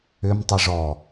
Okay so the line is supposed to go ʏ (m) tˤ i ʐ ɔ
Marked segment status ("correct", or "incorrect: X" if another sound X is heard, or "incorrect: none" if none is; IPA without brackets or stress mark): correct